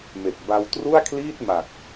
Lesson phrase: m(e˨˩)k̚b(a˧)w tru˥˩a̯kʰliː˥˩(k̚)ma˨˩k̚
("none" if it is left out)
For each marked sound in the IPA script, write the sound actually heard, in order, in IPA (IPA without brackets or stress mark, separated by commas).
e˨˩, a˧, t̚